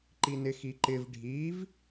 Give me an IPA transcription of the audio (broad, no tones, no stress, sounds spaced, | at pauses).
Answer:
ǃ i n ɪ x i ǃ ɪ v ɖʱ i v